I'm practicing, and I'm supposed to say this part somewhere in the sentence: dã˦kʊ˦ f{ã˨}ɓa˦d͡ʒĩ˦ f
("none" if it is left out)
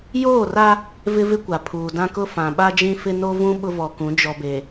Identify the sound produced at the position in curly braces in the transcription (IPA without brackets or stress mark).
ã˨